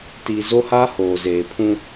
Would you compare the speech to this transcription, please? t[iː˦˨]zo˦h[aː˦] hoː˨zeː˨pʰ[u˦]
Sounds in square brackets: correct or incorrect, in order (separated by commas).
incorrect, correct, incorrect